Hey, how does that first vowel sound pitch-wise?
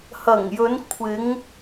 low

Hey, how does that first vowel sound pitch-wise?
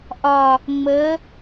low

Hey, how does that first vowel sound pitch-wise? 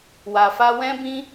low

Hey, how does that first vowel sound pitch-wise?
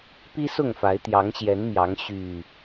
high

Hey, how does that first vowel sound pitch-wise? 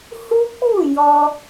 high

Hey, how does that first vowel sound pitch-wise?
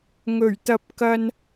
low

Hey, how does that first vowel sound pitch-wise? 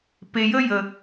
low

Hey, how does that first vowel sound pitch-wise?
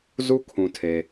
high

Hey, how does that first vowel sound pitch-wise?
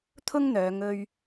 high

